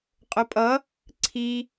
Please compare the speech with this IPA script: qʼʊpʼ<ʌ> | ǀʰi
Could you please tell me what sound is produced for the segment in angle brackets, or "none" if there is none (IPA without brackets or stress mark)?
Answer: ʌ